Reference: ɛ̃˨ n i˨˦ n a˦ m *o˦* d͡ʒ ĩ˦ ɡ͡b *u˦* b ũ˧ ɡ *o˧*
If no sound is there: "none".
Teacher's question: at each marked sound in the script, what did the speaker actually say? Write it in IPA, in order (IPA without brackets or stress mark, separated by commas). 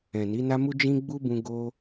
u˦, u˦, o˧